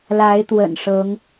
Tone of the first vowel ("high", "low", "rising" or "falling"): rising